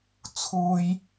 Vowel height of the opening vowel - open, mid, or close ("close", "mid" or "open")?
close